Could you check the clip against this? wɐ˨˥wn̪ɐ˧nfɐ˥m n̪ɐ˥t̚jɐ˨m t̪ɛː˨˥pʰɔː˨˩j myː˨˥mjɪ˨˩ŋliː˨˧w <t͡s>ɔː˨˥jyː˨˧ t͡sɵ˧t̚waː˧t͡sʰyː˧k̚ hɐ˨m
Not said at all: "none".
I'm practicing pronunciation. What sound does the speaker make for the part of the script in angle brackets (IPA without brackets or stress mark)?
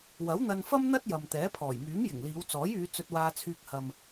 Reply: t͡s